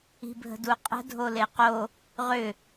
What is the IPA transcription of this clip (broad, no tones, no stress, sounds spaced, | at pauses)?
i̤ bʱ ə̤ d u qʼ ə̤ dʱ o l e q o | ʁ ʏ